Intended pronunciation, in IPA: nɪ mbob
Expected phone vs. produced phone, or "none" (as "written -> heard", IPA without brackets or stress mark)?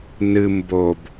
ɪ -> ɨ